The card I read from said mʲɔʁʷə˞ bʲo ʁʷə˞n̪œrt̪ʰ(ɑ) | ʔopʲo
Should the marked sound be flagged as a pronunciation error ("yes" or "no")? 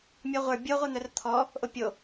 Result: yes